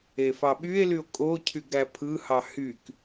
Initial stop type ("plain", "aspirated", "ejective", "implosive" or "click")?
implosive